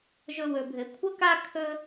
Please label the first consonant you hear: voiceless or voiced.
voiced